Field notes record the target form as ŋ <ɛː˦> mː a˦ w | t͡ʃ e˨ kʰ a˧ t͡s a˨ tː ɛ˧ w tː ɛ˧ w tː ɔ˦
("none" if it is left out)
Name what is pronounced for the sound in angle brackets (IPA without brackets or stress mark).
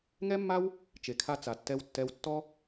ɛ˦